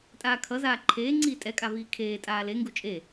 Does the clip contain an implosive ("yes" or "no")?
no